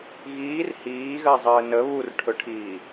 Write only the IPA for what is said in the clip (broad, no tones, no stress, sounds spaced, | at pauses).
ɣ iː r h iː ɣ ɜ zˤ əː n ə β u r ʈʰ ɵ ʈʰ iː